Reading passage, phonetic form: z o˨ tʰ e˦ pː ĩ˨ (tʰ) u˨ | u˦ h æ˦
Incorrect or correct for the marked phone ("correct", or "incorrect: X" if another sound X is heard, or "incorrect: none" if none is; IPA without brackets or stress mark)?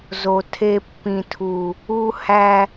correct